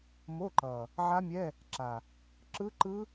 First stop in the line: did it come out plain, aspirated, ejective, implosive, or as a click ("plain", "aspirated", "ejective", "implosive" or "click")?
click